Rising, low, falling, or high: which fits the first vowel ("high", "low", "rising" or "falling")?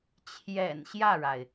low